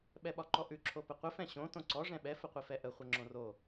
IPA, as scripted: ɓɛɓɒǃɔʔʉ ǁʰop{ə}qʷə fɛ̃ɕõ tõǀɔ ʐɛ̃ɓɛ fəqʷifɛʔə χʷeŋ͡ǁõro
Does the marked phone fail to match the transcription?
no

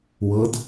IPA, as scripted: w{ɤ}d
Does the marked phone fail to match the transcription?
no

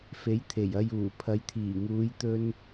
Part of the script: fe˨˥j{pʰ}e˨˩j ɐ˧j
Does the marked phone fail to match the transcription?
yes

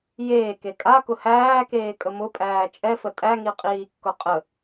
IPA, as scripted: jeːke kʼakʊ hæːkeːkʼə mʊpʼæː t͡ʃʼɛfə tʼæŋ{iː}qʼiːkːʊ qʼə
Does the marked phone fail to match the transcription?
yes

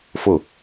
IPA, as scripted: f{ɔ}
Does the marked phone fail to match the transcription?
yes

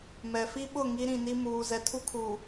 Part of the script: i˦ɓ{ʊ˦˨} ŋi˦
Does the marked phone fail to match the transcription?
no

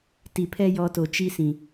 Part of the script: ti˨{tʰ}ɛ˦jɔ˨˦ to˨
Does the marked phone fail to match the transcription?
yes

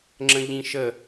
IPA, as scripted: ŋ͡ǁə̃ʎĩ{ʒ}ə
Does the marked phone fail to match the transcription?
yes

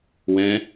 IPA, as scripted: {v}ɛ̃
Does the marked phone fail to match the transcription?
yes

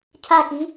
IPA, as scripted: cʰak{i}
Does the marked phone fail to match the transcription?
no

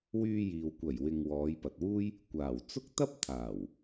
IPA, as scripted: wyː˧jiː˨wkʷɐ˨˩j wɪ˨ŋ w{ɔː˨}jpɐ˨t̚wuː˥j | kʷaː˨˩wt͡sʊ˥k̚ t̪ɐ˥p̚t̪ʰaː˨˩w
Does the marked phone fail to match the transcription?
yes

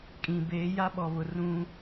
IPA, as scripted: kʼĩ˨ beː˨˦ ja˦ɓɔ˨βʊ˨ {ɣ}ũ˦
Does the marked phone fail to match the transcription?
yes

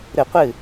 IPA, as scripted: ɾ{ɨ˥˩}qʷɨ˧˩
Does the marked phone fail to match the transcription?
yes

